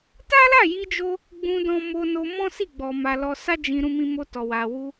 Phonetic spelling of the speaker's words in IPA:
t a˦ l a˦˨ j i˧ d͡ʒ o˧ | ɡ͡b ũ˧ d ɔ̃˧ m o˧ n o˧ m ɔ̃˦ s i˦˨ ɡ͡b ɔ˧ m a˧ l ɔ˧ s a˦ d͡ʒ ĩ˧ ɾ ũ˧ m ĩ˧ m o˧ t ɔ˨ w a˨ w u˧

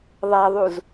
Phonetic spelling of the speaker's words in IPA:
ðˤ a ðˤ u z

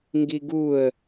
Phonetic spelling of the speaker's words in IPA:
ŋ ɡ i ɡ u ə̯

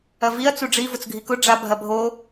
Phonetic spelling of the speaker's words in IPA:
ɐ v i ɐ̯ t͡s u ɖ͡ʐ i v ʊ t͡s ɡʱ i k ʊ ɖ͡ʐ a bʱ ɐ bʱ o

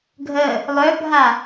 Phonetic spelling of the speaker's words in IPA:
ɡʱ ə | lˠ œ bʱ a

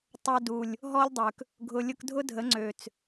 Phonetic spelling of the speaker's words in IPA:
tˤ œ˧ d u˨ lʲ | ɦ ɔ˦ lʲ dˤ ø˨ k | ɡʱ ʊ˧ lʲ ʊ˦ k dʱ ʊ˦ dʱ ə˨˦ ŋ͡ǀ ø˨ t͡s

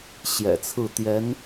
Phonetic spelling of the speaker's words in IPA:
ɕ j ɛ̰˨˩ t͡sʰ ɹ̩˥˩ t̪ j ɛ˧˥ n

